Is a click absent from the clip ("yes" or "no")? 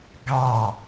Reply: yes